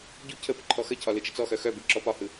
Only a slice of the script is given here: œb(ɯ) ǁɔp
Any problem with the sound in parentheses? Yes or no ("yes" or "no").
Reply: no